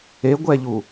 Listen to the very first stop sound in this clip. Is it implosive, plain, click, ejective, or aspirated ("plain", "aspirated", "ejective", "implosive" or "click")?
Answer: plain